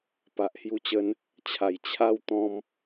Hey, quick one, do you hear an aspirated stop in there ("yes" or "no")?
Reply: yes